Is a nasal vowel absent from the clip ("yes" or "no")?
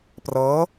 yes